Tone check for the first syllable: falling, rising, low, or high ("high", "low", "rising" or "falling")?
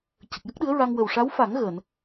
low